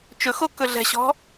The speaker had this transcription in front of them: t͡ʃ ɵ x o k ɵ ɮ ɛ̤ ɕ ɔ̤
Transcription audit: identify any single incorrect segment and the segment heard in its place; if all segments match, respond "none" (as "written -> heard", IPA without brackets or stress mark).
none